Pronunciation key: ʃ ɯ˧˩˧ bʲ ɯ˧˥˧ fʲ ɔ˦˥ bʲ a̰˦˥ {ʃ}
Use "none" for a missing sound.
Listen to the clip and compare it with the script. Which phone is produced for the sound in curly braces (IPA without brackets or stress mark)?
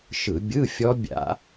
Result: none